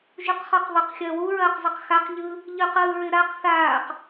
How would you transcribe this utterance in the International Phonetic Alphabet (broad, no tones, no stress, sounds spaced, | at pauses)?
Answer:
ʒ u q χ ɔ q ðˤ ɪ q xʲ ɐː w u ɹ ɐː q zˤ ɐ q x a q ʎ ɯ | ʎ ɯ q ɯː ɹ ɪ ɾ a q θ aː q